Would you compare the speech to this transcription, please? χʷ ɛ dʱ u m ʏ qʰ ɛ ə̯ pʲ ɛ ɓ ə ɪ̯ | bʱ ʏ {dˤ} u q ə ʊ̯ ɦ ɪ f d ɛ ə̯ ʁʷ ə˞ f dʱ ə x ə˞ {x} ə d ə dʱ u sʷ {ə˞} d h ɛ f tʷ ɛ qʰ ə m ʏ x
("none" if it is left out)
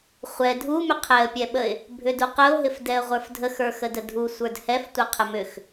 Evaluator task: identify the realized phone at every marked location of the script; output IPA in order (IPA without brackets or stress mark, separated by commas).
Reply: d, x, ə˞